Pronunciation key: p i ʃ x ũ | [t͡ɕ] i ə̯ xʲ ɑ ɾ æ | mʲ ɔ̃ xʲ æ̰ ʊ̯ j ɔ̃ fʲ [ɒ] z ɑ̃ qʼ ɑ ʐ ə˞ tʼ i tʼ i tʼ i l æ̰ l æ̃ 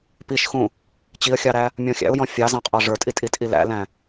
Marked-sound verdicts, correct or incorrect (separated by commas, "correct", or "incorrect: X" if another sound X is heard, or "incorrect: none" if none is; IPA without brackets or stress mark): correct, incorrect: ɑ